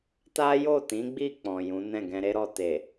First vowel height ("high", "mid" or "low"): low